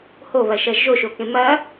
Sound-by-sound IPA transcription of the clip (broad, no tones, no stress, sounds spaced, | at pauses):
h o β ɐ ʃ ɐ ʒ o ʃ o k ẽ m ɐ